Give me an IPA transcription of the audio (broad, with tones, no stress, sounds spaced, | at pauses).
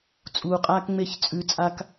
t͡sʼ uː˨ qʼ aː˦ k ŋ͡m e˦˨ ç t͡sʼ ʉ˨ t͡sʼ a˨ k